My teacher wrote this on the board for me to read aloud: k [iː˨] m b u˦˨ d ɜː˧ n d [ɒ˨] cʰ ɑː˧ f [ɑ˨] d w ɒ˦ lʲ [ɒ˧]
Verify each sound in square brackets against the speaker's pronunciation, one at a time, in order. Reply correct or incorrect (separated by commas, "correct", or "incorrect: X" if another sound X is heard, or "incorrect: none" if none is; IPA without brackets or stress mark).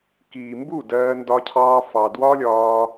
correct, incorrect: ɒ˧, correct, incorrect: ɒː˧